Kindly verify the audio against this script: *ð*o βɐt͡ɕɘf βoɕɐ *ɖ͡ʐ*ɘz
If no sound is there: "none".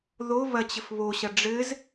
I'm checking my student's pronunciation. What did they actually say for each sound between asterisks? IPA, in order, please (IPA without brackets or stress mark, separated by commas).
ð, ɖ͡ʐ